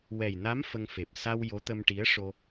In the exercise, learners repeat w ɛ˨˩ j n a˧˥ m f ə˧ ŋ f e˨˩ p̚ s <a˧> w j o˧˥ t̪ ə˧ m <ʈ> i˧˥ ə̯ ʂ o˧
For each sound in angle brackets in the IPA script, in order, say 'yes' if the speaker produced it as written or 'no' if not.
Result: yes, yes

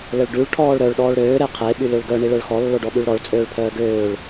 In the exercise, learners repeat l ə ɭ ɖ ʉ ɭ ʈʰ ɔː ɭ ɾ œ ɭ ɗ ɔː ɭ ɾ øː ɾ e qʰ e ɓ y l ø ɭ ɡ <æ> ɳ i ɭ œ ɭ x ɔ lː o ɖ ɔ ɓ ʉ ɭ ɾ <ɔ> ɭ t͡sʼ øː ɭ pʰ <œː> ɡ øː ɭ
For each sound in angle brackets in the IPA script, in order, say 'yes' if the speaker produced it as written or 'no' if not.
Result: no, yes, yes

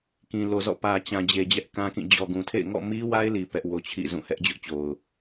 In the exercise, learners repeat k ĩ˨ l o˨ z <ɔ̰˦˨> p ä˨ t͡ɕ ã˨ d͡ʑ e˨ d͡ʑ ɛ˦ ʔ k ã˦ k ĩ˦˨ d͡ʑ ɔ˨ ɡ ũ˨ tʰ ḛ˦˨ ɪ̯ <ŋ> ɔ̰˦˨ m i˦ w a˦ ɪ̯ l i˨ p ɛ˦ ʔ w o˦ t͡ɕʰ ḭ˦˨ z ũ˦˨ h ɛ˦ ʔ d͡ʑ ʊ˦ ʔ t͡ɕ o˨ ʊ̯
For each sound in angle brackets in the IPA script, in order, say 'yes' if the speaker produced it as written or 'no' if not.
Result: yes, yes

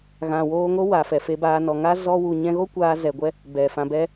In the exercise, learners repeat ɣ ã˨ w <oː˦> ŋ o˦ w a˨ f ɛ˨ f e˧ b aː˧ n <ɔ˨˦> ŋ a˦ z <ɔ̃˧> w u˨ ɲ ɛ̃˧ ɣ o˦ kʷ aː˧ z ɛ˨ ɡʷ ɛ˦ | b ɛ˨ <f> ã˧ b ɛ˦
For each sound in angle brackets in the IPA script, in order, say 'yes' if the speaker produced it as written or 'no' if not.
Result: no, no, no, yes

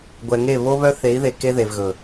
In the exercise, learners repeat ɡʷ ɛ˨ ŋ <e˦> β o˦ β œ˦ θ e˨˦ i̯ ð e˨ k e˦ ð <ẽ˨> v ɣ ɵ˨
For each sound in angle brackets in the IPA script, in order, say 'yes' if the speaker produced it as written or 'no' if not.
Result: no, no

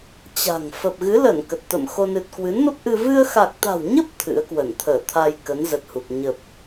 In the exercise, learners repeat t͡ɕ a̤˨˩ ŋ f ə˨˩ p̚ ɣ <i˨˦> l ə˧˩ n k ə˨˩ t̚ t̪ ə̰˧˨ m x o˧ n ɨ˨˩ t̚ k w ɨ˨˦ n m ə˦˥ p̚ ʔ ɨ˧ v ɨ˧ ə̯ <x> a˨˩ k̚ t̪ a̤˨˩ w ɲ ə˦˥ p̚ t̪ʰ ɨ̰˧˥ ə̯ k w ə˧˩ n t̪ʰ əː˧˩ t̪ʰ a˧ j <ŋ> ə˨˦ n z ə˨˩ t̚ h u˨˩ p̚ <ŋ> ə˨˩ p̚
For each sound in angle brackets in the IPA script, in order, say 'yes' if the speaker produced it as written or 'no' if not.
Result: no, yes, no, no

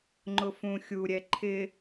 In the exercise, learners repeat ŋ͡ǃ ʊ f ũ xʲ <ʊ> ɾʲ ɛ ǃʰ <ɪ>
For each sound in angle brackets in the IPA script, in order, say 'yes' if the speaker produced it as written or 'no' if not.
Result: no, yes

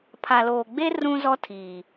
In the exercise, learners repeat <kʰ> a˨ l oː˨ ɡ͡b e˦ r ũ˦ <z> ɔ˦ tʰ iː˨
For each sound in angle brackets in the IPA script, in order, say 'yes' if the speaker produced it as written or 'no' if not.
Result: no, yes

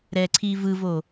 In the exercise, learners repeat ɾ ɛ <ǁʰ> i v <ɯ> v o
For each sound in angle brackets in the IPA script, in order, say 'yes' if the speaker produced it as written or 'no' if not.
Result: no, yes

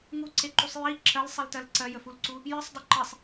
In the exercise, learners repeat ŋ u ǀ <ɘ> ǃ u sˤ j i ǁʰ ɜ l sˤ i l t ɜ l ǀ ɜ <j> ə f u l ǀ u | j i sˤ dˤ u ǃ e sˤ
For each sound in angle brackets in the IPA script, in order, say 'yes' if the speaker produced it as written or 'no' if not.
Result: no, yes

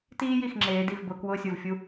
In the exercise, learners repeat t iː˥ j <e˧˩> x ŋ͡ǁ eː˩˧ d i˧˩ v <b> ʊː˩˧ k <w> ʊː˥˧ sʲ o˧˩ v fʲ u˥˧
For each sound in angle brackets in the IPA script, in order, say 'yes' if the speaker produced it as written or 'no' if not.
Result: no, yes, yes

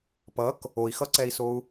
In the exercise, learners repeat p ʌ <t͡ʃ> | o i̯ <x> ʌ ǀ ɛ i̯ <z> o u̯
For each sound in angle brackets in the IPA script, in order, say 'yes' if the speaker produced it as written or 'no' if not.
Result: no, yes, no

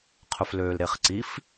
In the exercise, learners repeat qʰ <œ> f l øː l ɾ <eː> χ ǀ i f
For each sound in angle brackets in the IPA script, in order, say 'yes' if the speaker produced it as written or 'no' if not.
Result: no, no

